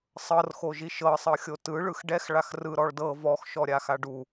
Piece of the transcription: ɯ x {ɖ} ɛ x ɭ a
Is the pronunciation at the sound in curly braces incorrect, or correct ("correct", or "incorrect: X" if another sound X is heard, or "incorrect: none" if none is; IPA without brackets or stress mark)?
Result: correct